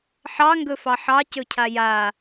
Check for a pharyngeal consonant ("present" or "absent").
present